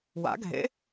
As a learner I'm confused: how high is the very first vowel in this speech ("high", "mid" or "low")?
low